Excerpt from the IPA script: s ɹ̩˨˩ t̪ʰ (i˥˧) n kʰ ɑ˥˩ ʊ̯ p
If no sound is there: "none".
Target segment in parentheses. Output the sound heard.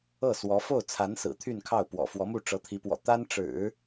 y˥˧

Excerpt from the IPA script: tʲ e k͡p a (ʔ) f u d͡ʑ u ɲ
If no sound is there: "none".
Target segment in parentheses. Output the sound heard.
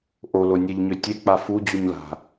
none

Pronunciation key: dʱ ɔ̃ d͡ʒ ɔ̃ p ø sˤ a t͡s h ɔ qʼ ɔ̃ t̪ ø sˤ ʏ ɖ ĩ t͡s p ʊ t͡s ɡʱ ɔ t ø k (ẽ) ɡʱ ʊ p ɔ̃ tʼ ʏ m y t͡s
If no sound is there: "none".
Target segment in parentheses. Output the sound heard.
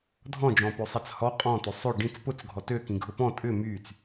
ĩ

